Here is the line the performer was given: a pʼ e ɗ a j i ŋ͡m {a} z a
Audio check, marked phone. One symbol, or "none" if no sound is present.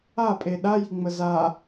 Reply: ə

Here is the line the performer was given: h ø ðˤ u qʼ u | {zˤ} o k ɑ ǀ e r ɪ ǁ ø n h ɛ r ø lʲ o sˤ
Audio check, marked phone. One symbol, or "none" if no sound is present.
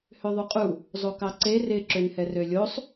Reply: zˤ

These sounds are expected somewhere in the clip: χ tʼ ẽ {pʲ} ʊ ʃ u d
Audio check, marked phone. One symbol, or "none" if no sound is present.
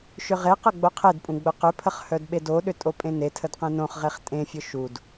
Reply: fʲ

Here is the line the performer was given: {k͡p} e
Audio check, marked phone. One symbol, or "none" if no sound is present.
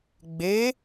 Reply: ɡ͡b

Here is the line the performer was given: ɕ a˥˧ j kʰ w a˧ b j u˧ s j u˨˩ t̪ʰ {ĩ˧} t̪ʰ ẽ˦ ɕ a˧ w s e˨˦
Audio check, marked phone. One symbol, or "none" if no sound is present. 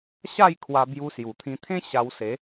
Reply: ĩ˧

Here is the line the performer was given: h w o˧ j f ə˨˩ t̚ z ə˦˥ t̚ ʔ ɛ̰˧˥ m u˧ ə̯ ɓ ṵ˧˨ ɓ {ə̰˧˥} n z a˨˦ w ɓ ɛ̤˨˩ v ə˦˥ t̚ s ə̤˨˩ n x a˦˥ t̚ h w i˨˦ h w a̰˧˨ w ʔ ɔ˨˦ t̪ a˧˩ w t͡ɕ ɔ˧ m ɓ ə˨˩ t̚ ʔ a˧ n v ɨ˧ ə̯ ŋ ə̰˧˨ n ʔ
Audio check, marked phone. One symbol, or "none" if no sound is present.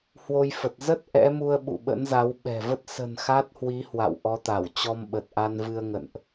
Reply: ə̰˧˥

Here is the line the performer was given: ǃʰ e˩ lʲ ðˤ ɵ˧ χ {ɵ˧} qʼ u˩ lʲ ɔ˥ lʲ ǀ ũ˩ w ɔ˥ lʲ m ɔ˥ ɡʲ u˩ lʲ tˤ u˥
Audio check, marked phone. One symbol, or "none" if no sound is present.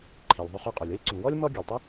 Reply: ɵ˧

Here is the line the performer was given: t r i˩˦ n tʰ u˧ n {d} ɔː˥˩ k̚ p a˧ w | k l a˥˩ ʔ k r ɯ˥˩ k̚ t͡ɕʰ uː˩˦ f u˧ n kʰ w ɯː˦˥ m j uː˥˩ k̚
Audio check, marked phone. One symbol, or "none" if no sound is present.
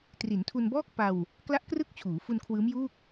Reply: b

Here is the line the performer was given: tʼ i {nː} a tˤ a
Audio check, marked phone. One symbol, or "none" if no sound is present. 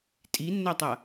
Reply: nː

